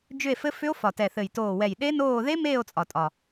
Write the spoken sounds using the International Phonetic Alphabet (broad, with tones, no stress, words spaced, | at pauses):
d͡ʒʏ˦˨e̯fɘ˦˥fʏ˦˥o̯ fɒ˨˩tɛ˨˩θɘ˨˩j toː˨˩wɛ˨˩j ɗe˦˥noː˦˨ ðe˦˥meː˦˨o̯ t͡sʼɒ˨˩ tʼɒ˨˩